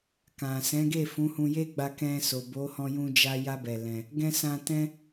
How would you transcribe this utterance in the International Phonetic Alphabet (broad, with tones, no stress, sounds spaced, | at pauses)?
k ã˨ s ɛ̃˨˦ ɡ e˦˨ f ũ˨˦ h ũ˧ j e˦ ɡ͡b a˧ k ɛ̃˧ s o˨ b o˨˦ h ɔ̃˧ j ũ˧ d͡ʒ a˧ j a˦ b ɛ˧ l ɛ̃˧ | ɡ ɛ̃˧ s ã˧ t ɛ̃˦